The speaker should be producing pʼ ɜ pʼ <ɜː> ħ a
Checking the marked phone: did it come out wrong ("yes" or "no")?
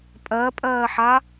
no